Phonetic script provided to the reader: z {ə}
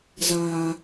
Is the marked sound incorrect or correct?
incorrect